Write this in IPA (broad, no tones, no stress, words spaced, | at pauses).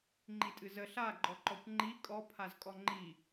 ŋ͡ǃitʼɨzə ɬa ɡ͡ǃɔǃɔkʷŋ͡ǃi kʼɔ pʰazkʼɔŋ͡ǃi